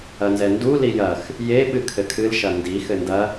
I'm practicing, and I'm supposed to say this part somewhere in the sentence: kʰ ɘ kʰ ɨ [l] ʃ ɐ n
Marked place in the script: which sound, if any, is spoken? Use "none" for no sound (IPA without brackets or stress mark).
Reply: l